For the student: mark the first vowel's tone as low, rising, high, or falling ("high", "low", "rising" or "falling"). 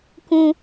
low